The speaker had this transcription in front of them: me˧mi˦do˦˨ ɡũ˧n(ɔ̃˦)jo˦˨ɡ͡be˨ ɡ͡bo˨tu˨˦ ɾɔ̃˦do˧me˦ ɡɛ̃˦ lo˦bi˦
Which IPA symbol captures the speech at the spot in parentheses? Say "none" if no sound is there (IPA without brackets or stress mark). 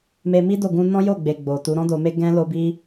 ɔ̃˦